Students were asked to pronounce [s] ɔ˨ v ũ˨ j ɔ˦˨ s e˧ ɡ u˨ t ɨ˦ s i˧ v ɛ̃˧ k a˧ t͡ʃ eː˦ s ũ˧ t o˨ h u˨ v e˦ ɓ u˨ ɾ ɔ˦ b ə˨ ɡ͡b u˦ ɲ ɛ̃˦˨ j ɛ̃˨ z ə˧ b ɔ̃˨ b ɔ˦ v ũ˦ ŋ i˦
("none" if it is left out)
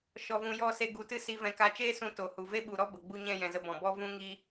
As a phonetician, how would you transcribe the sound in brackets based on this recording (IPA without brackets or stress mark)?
ʃ